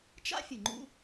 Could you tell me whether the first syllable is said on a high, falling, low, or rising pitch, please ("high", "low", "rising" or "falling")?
high